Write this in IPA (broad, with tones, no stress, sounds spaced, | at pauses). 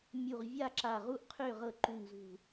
mʲ u˧˩ ʁ vʲ a˥˩ ǁ a˧˩ ʁ u˥˩ ʔ qʰ ø˥˩ ʁ ɤ˧˩ ǃ u˧˩ ŋ z ṳ˧˩